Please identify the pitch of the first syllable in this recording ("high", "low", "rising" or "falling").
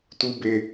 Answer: high